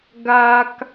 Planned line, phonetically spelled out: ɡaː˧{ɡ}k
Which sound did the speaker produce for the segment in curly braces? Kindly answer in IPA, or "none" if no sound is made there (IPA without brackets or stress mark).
none